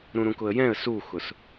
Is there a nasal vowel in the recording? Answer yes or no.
yes